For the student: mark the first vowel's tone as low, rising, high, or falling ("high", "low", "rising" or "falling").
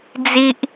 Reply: high